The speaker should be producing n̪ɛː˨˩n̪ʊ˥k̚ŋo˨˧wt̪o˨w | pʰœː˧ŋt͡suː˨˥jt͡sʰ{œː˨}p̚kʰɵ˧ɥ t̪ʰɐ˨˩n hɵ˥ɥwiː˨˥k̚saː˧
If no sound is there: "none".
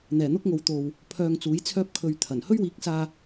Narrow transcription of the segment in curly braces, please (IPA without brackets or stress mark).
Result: œː˥